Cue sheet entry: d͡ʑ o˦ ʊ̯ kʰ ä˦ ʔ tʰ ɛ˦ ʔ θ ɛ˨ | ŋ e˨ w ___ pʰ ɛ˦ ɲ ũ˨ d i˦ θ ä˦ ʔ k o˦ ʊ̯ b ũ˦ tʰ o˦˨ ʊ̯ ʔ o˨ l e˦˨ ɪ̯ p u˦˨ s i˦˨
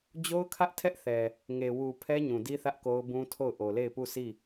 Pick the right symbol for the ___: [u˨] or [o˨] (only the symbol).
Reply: u˨